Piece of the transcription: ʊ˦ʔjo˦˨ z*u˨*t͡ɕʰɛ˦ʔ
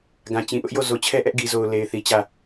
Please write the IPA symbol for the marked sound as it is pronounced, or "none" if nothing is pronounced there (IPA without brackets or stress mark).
o˨